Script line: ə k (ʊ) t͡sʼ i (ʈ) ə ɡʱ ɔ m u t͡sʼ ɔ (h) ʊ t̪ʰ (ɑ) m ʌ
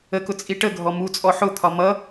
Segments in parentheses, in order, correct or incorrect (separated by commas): correct, correct, incorrect, incorrect